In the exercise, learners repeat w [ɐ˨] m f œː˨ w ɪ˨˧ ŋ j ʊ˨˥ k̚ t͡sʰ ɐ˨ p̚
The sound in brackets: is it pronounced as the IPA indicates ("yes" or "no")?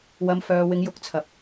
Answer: no